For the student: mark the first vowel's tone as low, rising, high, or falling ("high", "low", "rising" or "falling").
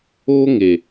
high